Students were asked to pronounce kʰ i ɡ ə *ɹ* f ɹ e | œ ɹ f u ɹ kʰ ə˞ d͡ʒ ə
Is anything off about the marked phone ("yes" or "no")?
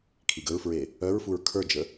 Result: no